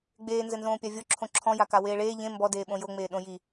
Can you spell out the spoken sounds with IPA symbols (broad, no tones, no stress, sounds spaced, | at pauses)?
ɡ͡b eː n z ɘ n z õː pʲ a vʲ o ǁʰ õ ǁʰ ɔ̃ j a k a w eː ɭ eː ʎ ẽ m b ɔ d eː ɓ õ j o ŋ͡m eː ɗ õ j i